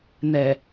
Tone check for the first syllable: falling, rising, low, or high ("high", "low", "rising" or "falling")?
low